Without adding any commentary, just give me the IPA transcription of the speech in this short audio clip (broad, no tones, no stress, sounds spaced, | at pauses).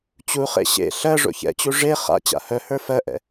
t͡ɕ u χ ḛ ɕ ḛ ɬ ɜ ʐ o̰ ç ɛ̰ t͡ɕ u ʐ e χ a̰ t͡ɕ a̰ h œ h ə˞ f ɜ ʔ ɛ̰